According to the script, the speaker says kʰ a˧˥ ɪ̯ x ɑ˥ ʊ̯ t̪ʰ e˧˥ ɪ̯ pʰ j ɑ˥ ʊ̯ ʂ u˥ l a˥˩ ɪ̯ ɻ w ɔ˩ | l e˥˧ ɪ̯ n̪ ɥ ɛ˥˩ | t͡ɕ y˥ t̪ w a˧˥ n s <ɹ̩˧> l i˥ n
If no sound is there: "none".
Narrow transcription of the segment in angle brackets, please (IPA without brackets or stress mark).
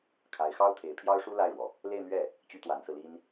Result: ɹ̩˧